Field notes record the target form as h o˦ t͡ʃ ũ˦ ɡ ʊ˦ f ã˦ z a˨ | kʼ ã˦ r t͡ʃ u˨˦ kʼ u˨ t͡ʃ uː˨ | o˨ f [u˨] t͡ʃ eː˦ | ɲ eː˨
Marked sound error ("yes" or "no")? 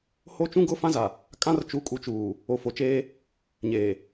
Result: yes